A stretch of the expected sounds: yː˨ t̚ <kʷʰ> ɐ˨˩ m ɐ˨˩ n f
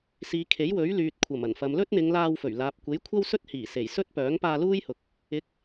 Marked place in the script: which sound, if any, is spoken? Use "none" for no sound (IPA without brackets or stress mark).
kʷʰ